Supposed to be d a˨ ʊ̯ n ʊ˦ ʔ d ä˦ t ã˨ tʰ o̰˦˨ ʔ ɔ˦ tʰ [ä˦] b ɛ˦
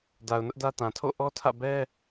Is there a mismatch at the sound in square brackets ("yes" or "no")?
yes